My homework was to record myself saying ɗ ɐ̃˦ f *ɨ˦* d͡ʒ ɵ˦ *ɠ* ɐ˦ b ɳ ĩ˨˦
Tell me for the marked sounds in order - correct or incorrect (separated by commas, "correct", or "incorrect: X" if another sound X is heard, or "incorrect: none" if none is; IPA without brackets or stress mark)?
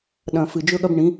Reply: incorrect: ɨ˧, correct